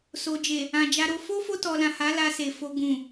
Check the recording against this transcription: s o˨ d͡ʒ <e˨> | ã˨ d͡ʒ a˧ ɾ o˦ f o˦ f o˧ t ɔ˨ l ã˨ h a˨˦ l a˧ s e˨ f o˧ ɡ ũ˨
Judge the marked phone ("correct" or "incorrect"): correct